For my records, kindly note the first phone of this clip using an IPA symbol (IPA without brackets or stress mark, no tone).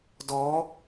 d